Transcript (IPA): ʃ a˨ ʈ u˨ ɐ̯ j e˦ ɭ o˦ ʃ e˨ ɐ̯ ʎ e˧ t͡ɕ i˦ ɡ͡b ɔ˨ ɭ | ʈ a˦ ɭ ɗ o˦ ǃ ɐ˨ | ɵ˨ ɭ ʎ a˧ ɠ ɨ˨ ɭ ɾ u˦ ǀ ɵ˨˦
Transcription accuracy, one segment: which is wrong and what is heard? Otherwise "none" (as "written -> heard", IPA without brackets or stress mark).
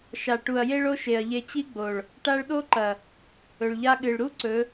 ɔ˨ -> o˨